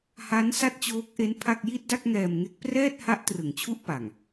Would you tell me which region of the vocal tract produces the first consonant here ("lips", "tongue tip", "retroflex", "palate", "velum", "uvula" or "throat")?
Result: throat